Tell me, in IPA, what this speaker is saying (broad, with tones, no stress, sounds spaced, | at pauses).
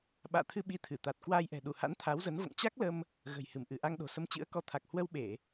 ɓ a̰ː˧˨ t̪ʰ ɨ˧ ɓ i˧ t̪ʰ ɨ˧˩ t̪ a˨˩ t̚ k w aː˧ j ʔ ɛ̤˨˩ ɗ u˧˩ h a̰˧˥ n t̪ʰ a˨˦ w z ə˨˦ n v o̰˧˨ ŋ t͡ɕ a˦˥ k̚ l ə˧ m | ɣ ə̤˨˩ j h ɨ˧˩ m ʔ ɨ˧˩ ʔ a˧ ŋ ɗ o̤˨˩ s ə˧ m t͡ɕ ɨ̰˧˥ ə̯ k ɔ˧ t̪ʰ a˨˩ k̚ h w ə˧ w ɓ e˧˩˨